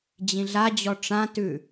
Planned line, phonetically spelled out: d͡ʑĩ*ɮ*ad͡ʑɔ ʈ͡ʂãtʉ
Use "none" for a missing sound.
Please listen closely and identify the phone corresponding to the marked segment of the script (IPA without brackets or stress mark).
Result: ɮ